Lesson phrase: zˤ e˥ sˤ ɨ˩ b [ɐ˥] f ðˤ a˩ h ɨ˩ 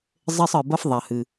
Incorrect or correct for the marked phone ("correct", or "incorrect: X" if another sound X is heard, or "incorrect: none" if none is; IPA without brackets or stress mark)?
correct